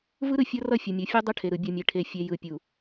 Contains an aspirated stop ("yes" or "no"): yes